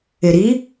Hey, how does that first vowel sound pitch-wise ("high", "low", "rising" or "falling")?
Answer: low